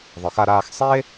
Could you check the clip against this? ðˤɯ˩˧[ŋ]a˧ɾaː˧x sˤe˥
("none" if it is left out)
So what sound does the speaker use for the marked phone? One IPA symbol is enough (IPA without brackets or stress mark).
x